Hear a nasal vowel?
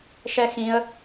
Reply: yes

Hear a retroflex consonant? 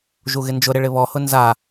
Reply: yes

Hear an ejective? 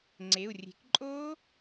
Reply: yes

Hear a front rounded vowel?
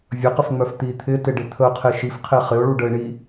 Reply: yes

